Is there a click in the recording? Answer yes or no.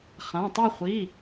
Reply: no